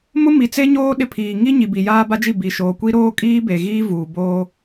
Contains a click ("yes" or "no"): no